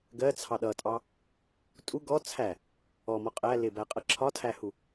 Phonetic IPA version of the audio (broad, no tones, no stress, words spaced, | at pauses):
ɡɜt͡sʰɑ ɗʌtʼɑ | tʼu ɡɔ t͡sʰæ | ɔmɔ qʼæ lɪbæqʼʌ ǁʰɒtʰæhu